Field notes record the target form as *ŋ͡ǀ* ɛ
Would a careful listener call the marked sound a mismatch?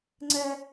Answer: no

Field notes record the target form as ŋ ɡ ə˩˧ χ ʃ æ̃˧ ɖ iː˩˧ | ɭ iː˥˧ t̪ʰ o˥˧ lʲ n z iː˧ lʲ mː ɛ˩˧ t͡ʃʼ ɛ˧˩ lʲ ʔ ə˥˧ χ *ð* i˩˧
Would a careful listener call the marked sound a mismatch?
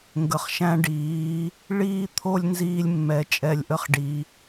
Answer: yes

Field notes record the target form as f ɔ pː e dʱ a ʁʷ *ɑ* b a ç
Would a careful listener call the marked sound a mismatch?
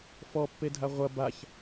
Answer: yes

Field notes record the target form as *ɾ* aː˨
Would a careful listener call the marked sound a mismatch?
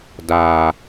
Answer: yes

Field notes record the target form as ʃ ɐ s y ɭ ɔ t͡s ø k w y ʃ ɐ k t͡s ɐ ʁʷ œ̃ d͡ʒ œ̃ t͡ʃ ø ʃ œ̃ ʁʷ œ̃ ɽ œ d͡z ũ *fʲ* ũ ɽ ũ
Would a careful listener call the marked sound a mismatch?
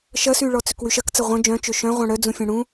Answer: no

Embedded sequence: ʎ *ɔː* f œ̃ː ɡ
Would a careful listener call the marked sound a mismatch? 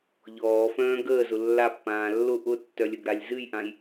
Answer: no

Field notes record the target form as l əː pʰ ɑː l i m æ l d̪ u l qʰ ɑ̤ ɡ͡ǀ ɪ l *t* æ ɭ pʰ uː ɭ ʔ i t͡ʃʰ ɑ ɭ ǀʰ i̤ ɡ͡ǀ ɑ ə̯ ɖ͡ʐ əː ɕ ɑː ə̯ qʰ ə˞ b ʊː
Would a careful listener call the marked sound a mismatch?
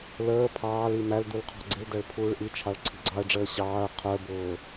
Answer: yes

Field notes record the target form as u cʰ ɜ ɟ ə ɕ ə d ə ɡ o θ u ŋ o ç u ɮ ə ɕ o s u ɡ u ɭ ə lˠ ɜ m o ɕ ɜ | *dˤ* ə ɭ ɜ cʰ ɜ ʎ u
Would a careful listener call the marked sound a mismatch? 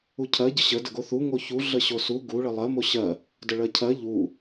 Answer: yes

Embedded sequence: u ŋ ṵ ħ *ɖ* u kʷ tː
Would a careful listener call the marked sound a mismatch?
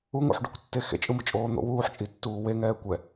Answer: no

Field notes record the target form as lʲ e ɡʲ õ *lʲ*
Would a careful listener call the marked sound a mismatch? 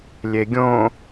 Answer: yes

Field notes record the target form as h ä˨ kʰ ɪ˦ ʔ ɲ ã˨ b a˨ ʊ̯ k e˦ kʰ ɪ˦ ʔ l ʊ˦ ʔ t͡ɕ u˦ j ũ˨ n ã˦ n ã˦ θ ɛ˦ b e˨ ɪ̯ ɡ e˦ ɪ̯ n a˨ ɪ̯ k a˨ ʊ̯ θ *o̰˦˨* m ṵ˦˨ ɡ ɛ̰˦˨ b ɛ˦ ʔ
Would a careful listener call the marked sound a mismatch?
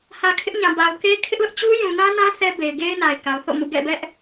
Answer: no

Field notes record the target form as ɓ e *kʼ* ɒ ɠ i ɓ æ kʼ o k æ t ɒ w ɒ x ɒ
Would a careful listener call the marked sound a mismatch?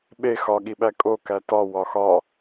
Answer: yes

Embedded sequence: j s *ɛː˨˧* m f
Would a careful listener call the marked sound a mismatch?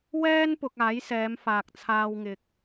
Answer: no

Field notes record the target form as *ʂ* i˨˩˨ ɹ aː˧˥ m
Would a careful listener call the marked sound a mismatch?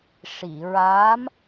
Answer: no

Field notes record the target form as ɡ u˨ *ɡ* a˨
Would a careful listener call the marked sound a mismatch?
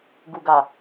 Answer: no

